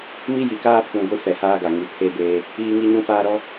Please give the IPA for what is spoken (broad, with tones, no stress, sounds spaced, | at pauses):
m i˦ j i˨ k aː˦ pʰ ũ˨ ɡʷ i˦ f ɛ˨ h aː˦ ɡ a˨ ŋ i˨ pʰ e˦ b eː˦ | iː˦ ŋ i˦ ɲ ũ˦ f aː˦ ɾ ɔ˦